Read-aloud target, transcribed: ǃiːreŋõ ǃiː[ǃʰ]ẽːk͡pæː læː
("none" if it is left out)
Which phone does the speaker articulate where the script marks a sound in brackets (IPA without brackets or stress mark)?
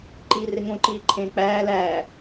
ǃʰ